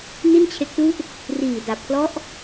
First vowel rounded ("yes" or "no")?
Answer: no